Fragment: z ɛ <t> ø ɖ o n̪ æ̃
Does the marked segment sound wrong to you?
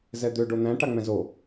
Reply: yes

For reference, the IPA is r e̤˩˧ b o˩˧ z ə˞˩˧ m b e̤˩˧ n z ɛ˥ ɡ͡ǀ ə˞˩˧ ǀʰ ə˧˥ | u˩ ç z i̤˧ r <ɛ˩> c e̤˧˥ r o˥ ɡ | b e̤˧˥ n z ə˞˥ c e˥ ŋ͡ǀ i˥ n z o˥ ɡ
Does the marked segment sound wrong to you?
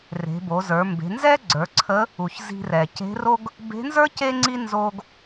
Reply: no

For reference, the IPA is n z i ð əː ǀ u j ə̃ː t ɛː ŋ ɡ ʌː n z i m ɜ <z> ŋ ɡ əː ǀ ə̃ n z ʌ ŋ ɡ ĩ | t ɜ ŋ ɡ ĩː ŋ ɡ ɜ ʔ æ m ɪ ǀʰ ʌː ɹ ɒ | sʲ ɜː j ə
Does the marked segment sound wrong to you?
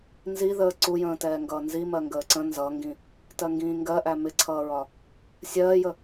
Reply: yes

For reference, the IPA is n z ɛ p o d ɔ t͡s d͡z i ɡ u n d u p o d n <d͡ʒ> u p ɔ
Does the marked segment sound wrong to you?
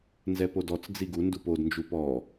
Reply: no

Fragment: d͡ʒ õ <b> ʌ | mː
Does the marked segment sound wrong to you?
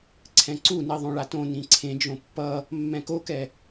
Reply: yes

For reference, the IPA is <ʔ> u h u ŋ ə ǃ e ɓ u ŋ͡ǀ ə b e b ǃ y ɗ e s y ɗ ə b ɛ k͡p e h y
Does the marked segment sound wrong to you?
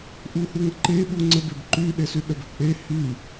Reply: no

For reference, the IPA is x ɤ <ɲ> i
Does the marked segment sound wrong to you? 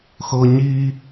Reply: no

